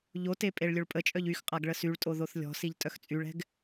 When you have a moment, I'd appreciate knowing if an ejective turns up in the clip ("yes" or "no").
yes